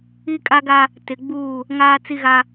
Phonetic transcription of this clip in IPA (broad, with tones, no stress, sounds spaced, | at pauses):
i˦ kʼ a˦ ɡ a˦ | t ɪ˨ ɡ͡b uː˦˨ | ŋ aː˦ t͡s i˦ ɣ a˦